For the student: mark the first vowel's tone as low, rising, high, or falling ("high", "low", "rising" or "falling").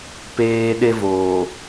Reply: high